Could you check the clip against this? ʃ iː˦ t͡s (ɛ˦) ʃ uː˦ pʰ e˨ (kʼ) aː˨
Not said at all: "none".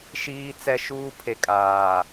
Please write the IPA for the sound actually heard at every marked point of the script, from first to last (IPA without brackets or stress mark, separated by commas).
ɛ˦, kʼ